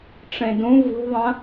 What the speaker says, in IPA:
ʈ͡ʂ ẽ d ũ v ṳ ðˤ ɐ̃

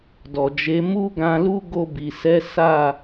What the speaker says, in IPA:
d ɔ˨ d͡ʒ e˨˦ m u˦ ɡ ã˧ l u˦ ɡ o˧ b i˨ s ɛ˨˦ s a˦˨

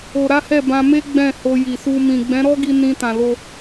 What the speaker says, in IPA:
o˧ ɾ a˦ h ɛ˦˨ b ã˧ m e˦ ɡ͡b ɛ̃˦˨ h o˧ j i˨ s u˧ m ĩ˨ ɡ͡b ɛ̃˨˦ ɾ ɔ˦ ɡ i˧ n ĩ˧ t ã˨ l o˧

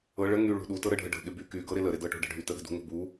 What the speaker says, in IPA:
ɤ ɭ ə ŋ y ɭ ṳ ɗ u t ɤ ɾ ə ɖʱ ə ɖ ə̤ ɠ ɪ b y k y ɡ ɤ ɾ ɪ l ə ɾ ɪ d ɤ ʈ o̤ ɖ ə̤ ɖʱ y t ə ɠ ə̤ d ṳ ŋ o̤ b u

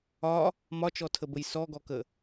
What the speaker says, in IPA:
ɒ | m ɒ t͡ʃ ɔ tʰ ə b ə j s ɔ ɡ ɔ k ə

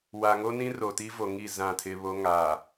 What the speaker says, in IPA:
w a˨ ŋ o˦ n ĩ˦ r o˨ t i˦ v o˨ ŋ i˦˨ z ã˦˨ tʰ ɪ˦ β o˦ ŋ aː˨

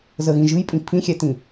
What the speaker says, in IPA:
z ə ɣ ĩ ʒ ɨ j pʼ ĩ pʰ ĩ xʲ ɛ t ĩ

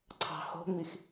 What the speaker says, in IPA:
ǀʰ ɑ̤ h o̤ ŋ͡m i x

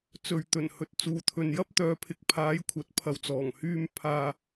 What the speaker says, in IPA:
t͡s ɵ˨ ɥ t̪ ɵ˨˩ n h ɵ˨ t̚ t͡s uː˨ t̪ʰ ɵ˨ n j ɐ˥ p̚ t̪ œː˨˧ pʰ ɪ˨ k̚ pʰ aː˨˥ j kʷʰ ɐ˨ t̚ pʰ ɐ˨ w t͡s ɔː˨˩ ŋ h yː˧ m pʰ aː˧

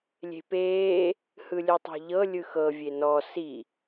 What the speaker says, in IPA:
lʲ e̤ p eː | h ɯ lʲ ɯ tˤ o̤ ʎ ɤ lʲ ɯ x ɤ vʲ e n ɔ s i

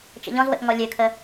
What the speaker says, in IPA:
t͡ʃ ə̰ ʎ ɔ̃ z w ə̰ ʔ ŋ ɔ lʲ ø kʰ ə

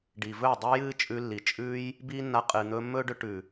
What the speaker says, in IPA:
ɖ i˨ v ɵː˦˨ dˤ ɨː˧ j ɨː˦ t͡ʃʼ ʉ˧ lː i˨ t͡ʃʼ ʉː˧ j | b iː˦ nː a˧ qʼ ɨː˨ n̪ ɵː˧ mː ɵː˦ ɖ ɵ˧ ʈ ʉ˨

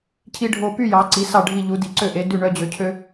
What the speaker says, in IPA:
cʰ i˧ ɖʱ o˧˩ p y˥˧ j ɑ˩˧ ǀ i˩˧ s ɑ˧˩ ɖʱ i˧˩ ʎ u˩˧ d i˩˧ ǀ ø˧˩ ʔ e˩˧ d ʉ˧˩ ɳ œ˧ d͡ʑ ø˩˧ cʰ ø˧

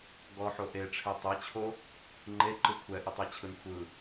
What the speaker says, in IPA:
ɡ ɔ ħ o ʔ e ʈ͡ʂʰ e tˤ e t͡ɕʰ o | ŋ͡ǃ e ǃ ɯ kʷʰ ɛ ʔ ɯ tˤ ɛ t͡ɕʰ ɯ n xʷ ɯ

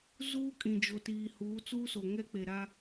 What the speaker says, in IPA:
z uː˦ kʼ ĩ˨ d͡ʒ o˨ t iː˨ h uː˨˦ t͡s uː˦ s o˨ ŋ ɛ˦ k͡p e˨ ɾ a˦

